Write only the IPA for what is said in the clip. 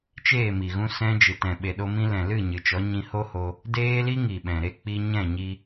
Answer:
t͡ʃ eː˦˨ m i˨ ɣ ũ˧ s ɛ̃˧ d͡ʒ ɨ˨ t ɛ̃˨ ɓ e˨ ɗ o˧ m ĩ˧ l ɛ̃˨ l ɨ˦˨ ɲ ɨ˨ t͡ʃ ɔ˨˦ ɲ ĩ˧ h o˦ h o˧ | d eː˦ l i˦ ŋ i˨ ɓ ɛ̃˨ ɾ e˧ k͡p i˧ ɲ ɛ̃˦˨ ɲ i˧

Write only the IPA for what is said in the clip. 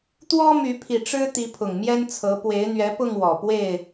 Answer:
t̪ w ɔ˦ m y˨˦ pʰ i˨˩ ʈ͡ʂ ɻ̩˦ t̪ i˨˦ pʰ ʊ˨˩ ŋ m j ɛ˦ n t͡sʰ ɤ˨˦ p w e˨˦ ɪ̯ n̪ ɥ ɛ˨˦ p ʊ˥˨ ŋ w ɔ˨˩ p w e˥˨ ɪ̯

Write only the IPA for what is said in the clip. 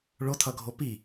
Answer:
ɭ o tʰ ʌ ɡʱ o p i

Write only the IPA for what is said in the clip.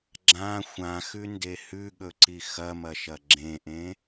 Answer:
ɡ͡ǁ ã xʷ ã x ʉ n d e h ʉ ɠ ɵ ǀ i x ɐ m ɐ ʃ ɐ ɡ͡ǁ ẽ ʔ ẽ

